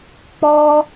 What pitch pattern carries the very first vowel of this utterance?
high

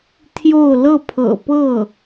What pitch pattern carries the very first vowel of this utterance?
falling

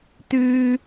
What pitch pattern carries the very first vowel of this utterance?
high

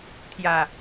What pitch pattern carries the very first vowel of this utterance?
low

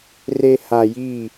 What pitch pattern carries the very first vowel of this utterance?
low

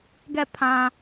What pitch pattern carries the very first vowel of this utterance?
falling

